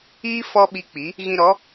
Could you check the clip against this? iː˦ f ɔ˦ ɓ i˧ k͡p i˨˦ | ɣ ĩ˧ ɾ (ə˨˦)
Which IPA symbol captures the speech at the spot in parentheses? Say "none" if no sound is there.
ɔ˨˦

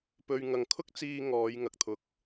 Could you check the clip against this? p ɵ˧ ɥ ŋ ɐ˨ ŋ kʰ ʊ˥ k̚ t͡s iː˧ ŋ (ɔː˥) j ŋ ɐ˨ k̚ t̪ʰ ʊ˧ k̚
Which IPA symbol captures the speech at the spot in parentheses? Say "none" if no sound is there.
ɔː˨˧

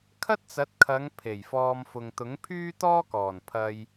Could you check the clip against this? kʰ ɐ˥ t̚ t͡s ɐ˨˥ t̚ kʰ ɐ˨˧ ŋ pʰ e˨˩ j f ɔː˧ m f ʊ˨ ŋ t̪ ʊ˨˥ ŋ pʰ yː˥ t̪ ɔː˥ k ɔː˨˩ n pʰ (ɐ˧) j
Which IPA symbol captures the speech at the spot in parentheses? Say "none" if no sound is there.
ɐ˧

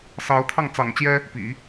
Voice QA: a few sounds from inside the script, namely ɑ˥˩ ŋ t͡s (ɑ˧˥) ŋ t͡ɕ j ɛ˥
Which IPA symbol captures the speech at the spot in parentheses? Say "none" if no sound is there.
ɑ̰˨˩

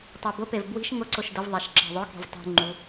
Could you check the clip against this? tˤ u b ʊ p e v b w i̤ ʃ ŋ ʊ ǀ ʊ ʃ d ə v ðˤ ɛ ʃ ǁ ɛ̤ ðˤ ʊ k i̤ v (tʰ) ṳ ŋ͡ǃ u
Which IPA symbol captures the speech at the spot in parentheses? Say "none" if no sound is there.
tˤ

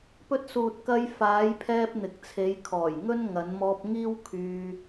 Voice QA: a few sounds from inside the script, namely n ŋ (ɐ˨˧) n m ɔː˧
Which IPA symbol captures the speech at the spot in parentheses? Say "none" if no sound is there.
ɐ˨˧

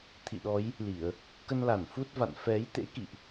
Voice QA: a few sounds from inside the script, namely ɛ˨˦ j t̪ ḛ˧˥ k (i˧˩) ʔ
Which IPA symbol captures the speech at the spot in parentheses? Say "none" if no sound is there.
ḭ˧˨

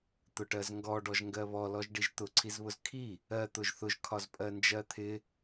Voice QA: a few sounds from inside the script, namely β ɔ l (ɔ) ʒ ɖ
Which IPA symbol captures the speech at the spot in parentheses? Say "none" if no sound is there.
ɔ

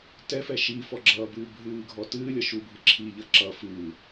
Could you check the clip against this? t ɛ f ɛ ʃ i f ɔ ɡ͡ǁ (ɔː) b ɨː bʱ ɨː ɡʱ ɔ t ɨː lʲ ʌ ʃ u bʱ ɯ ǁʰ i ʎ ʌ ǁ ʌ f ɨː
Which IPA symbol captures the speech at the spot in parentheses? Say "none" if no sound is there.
ʌː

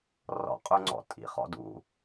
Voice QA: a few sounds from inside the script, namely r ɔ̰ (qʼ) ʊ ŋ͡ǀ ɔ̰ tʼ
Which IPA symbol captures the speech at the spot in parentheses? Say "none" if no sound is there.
qʼ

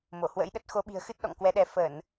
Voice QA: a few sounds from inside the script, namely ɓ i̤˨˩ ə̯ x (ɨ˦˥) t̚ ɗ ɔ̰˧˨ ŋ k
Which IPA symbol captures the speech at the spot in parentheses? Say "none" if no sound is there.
ɨ˦˥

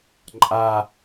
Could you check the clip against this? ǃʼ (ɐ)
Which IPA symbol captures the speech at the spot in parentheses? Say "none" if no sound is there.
a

